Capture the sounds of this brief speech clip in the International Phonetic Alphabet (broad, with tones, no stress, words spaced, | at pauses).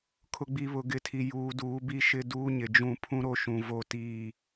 kʰʊ˨ ɡ͡bi˨βʊ˨ɡɪ˨˦tʰi˨ juː˨duː˨˦bi˦ʃɪ˦ duː˦ɲɪ˨d͡ʒũ˦˨ pʰũ˦ɾo˦ʃũ˨ vo˦˨tiː˦˨